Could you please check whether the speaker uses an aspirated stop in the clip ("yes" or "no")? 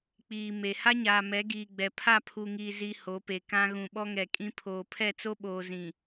yes